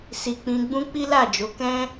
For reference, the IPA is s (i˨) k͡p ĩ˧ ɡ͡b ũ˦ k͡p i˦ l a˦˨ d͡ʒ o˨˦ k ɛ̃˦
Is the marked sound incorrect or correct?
correct